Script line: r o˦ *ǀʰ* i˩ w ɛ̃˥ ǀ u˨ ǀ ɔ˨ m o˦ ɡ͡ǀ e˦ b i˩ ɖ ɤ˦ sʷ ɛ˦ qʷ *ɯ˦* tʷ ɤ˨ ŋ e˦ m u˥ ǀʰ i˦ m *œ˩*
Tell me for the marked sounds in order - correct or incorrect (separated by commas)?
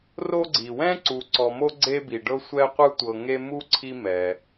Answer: incorrect, correct, incorrect